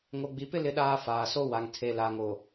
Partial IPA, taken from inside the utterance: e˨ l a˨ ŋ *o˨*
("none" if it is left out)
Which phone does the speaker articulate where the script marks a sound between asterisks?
o˨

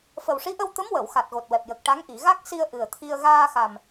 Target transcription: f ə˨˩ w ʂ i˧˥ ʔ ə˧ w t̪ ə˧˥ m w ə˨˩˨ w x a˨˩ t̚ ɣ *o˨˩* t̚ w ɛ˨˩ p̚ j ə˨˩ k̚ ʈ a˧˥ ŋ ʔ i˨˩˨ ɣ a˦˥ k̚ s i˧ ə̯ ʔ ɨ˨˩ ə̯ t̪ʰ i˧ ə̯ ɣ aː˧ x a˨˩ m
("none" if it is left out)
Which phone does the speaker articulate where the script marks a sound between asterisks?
o˨˩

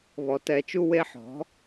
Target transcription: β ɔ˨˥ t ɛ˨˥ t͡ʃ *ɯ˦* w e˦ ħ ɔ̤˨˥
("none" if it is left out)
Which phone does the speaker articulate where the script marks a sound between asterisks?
u˦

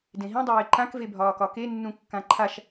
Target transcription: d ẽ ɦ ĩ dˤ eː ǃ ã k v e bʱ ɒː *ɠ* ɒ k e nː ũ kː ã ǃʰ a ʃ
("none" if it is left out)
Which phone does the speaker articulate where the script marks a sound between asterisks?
k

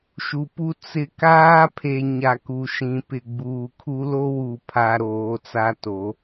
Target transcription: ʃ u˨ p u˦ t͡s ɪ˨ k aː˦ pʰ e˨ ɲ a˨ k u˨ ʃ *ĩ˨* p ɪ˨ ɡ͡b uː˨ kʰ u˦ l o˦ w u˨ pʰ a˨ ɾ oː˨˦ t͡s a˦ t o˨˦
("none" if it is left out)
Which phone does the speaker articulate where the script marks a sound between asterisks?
ĩ˨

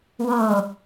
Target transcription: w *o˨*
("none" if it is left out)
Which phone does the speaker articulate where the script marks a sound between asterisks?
o˨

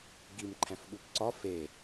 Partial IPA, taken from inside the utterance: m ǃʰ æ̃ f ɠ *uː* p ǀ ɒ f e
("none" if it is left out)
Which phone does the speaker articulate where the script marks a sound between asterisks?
u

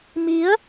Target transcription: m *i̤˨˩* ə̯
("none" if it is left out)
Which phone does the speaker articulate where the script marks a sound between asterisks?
i˨˦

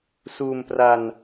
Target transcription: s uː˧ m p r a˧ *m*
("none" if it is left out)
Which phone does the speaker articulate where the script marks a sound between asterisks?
n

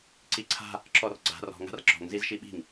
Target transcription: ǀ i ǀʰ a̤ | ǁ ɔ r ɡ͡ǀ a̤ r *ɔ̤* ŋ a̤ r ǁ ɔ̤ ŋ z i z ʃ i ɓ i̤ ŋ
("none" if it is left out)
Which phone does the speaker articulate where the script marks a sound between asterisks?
ɔ̤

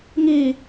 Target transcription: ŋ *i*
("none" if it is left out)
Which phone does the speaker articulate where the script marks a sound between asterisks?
i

